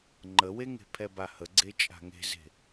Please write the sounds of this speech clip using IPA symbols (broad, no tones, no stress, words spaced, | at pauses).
ŋ͡ǃəweŋe̤ pʰɛbahəɡ͡ǀe t͡ʃʼa̤ŋe̤ze̤